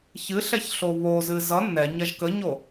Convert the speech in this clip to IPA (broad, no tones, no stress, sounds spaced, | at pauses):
ç ɨ ɬ ɛ ç ɬ o β o z ɨ z ʌ nː ɛ ɲ ɐ ʒ k ə ɲ o